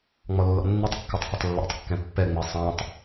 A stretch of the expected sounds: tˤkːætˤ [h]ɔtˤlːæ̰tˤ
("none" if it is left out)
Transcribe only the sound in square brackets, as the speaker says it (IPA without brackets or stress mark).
h